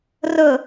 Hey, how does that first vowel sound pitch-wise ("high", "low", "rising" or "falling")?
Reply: falling